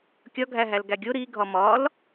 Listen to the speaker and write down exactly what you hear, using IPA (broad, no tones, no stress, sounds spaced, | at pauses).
kʲ ɒ ɡʱ æ ɦ æ l ɡ æ ɡʲ o ɾ i ɡʱ ɒ m ɒ l